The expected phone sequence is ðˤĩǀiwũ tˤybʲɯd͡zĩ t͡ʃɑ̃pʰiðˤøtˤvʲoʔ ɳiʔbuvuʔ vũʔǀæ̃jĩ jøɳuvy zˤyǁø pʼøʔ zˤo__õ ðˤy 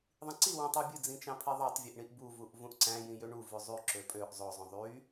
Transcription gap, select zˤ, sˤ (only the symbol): zˤ